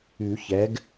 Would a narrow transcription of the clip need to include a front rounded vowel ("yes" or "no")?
yes